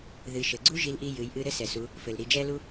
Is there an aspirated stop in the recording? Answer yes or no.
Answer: no